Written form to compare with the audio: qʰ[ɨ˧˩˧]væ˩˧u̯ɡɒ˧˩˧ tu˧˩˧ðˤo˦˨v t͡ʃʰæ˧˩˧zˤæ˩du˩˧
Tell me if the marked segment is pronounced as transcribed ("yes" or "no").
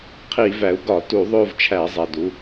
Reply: no